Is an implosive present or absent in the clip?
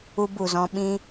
present